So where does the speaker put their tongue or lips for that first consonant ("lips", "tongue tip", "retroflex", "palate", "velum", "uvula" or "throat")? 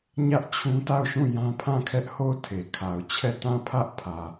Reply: palate